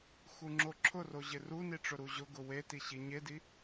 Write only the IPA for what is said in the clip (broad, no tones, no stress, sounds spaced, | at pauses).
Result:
x u ŋ͡ǁ o ǁʰ ʊ r o ʑ ɪ r u n i ʈ͡ʂ ʊ ɾ u ʑ ʊ ɡ ʊ w e t i ɕ i ɲ e d i